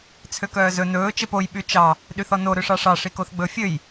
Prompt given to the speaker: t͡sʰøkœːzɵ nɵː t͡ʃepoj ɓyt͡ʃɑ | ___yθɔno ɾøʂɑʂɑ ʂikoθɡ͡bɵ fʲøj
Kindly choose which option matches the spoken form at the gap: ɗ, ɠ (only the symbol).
ɗ